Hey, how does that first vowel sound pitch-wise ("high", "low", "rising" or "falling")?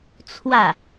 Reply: falling